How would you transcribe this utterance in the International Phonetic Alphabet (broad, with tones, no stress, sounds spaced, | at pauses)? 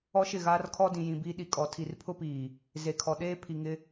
ɔ˦ ʃ ɪ˦˨ ɣ aː˦ r kʰ ɔ˦ d ĩ˨ j ĩ˨ b iː˦ ɗ i˨ kʼ ɔ˨ tʰ i˨ r pʰ ʊ˦ p iː˨ | z e˨ kʰ ɔ˨ ɗ eː˦ pʰ i˨ ŋ ɪ˦